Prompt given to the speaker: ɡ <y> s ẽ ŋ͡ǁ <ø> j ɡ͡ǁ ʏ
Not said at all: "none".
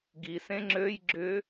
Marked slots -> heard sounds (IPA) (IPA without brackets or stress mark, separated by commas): i, ø